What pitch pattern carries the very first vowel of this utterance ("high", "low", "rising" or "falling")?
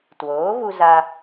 rising